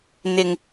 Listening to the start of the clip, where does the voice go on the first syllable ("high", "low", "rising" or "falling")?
low